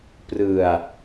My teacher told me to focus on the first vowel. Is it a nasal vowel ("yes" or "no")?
no